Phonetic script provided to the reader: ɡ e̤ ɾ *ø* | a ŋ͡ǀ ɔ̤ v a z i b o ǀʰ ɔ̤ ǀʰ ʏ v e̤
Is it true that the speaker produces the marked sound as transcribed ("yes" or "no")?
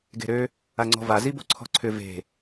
yes